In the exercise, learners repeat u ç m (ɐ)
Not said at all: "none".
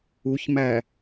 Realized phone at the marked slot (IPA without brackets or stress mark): æ